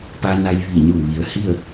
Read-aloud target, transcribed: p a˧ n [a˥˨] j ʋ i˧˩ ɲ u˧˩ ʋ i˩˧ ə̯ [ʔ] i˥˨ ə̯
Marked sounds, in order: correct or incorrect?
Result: incorrect, incorrect

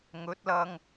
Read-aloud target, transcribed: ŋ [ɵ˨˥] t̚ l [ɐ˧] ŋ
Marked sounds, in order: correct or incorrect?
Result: correct, correct

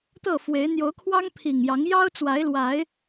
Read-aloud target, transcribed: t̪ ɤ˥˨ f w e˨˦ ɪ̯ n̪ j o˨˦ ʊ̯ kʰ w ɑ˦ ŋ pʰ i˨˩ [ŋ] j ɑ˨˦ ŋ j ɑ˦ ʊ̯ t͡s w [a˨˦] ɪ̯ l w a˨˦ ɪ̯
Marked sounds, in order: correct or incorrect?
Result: correct, correct

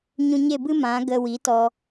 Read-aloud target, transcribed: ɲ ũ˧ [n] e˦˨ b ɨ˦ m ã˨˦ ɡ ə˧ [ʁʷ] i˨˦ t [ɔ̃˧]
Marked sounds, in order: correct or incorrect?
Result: incorrect, incorrect, incorrect

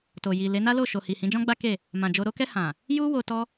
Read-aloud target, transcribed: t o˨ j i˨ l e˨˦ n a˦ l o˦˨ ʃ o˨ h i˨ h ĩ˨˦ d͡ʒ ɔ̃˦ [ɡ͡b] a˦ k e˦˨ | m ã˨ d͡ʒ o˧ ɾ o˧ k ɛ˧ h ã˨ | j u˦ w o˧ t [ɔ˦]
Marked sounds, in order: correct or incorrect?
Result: correct, correct

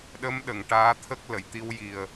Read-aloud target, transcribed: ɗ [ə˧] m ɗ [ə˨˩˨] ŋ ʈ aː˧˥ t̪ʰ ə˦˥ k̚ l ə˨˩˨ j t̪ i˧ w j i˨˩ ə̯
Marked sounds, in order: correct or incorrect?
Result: incorrect, correct

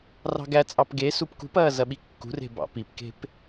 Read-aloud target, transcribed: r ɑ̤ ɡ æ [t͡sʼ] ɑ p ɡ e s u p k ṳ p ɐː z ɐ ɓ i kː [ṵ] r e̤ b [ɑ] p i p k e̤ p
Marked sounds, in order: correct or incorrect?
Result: correct, incorrect, incorrect

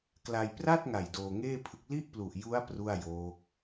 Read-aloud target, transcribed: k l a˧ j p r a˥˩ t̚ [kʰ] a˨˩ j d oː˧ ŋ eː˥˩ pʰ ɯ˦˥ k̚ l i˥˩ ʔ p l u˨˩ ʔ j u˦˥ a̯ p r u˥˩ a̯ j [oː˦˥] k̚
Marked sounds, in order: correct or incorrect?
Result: incorrect, correct

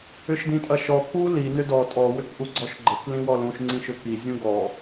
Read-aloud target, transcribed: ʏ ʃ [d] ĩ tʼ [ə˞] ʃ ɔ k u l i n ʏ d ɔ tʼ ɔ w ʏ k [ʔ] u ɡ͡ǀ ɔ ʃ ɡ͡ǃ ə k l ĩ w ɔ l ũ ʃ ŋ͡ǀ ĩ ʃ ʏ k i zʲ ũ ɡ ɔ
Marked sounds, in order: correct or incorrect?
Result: correct, incorrect, correct

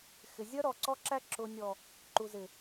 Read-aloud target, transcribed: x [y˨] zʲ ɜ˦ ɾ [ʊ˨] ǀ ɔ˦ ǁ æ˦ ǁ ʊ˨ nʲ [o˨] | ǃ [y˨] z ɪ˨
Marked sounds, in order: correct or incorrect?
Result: incorrect, incorrect, incorrect, incorrect

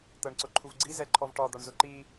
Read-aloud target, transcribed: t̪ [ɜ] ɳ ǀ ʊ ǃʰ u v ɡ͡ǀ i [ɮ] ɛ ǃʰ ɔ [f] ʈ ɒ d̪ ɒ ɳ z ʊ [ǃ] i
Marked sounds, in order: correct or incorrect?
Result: correct, incorrect, incorrect, correct

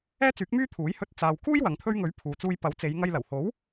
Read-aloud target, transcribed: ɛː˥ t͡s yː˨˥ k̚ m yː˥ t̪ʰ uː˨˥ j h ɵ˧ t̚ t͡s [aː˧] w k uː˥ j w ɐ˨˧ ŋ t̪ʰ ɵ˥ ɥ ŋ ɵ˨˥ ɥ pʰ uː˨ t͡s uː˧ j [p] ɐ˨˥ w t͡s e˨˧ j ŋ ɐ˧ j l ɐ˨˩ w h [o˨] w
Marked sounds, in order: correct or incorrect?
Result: incorrect, correct, incorrect

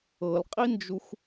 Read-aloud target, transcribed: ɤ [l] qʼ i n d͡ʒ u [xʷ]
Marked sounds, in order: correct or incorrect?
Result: correct, correct

